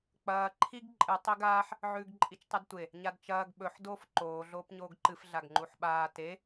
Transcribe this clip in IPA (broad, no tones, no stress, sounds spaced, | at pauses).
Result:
k͡p ɐː ǃʰ i ɡ ǃʼ ɨ tˤ e ɡ aː ħ | ʕ ʉː ɡ ǃʼ i t͡ʃ tˤ ɨ d tʷ e | ɲ a d t͡ʃ ɐː ɡ ɓ ɵ ħ d oː f ǃ oː ɮ oː p ɲ oː ɡ ǃ ɨ f ɮ a ɡ ŋ͡ǃ u ħ ɓ aː t e